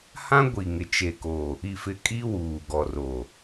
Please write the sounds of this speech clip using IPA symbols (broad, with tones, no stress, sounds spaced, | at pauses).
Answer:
h ã˦ ɡʷ i˨ ŋ ɪ˨ t͡ʃ e˨ k o˨ | i˨ f ɪ˨ kʼ i˦ w uː˨ ɡ ɔ˨ r o˨